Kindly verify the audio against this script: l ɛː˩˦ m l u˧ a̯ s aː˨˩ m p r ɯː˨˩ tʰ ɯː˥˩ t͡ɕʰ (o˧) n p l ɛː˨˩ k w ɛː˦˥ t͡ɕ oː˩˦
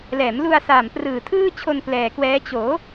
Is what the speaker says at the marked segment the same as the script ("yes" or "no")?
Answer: yes